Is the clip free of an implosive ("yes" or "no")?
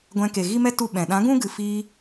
no